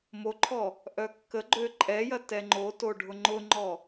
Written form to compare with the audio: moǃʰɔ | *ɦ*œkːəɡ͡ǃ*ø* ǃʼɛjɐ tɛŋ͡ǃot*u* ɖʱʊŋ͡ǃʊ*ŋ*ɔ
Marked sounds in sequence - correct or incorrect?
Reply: incorrect: ʔ, correct, incorrect: o, incorrect: ŋ͡ǃ

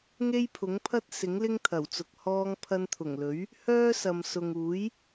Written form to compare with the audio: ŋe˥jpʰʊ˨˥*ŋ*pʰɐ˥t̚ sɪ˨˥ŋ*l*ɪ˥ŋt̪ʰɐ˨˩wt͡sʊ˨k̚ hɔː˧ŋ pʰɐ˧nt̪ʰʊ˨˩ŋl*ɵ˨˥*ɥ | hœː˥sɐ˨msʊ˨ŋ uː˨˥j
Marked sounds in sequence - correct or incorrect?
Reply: correct, correct, correct

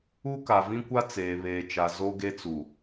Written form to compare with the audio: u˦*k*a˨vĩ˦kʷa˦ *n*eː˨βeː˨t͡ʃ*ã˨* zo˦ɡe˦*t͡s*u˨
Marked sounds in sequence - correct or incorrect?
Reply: correct, incorrect: t͡s, incorrect: a˨, correct

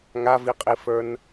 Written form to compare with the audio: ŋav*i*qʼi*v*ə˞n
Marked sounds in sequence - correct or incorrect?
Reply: correct, incorrect: f

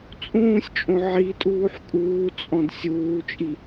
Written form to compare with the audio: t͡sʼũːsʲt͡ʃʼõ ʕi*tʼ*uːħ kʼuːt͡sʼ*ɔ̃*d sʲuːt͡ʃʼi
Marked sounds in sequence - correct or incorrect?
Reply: correct, correct

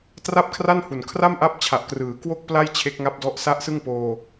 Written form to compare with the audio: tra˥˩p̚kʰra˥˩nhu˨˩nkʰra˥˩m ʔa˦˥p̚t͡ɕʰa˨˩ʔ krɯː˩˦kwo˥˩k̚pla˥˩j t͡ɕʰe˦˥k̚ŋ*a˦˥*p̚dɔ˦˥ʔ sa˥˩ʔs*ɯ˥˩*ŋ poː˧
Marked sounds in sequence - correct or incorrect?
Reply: correct, correct

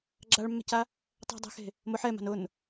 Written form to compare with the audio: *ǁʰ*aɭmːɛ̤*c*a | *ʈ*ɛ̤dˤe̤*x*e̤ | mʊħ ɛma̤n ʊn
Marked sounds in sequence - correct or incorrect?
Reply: incorrect: ɡ͡ǁ, correct, incorrect: tˤ, correct

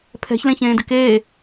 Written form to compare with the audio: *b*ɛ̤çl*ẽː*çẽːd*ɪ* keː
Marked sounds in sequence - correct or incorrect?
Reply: incorrect: pʰ, incorrect: ẽ, correct

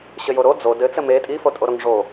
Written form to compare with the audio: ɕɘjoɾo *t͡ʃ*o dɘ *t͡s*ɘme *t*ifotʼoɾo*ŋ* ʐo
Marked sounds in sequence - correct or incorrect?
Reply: incorrect: d͡z, correct, incorrect: tʼ, correct

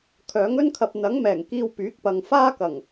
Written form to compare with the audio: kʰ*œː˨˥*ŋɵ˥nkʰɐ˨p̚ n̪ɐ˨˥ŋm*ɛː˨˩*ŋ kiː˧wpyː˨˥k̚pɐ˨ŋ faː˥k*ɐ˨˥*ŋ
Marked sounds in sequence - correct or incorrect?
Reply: correct, correct, incorrect: ɐ˨˩

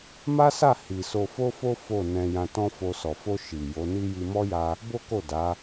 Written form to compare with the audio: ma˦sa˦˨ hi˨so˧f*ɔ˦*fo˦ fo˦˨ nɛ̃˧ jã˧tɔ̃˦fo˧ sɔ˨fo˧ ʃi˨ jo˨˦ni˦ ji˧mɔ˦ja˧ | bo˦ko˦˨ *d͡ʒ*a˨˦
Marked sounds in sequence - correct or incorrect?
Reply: incorrect: o˦, incorrect: d

